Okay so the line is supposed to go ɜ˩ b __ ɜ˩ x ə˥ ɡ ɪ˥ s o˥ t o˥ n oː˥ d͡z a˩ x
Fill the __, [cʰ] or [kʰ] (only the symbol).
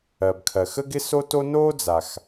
kʰ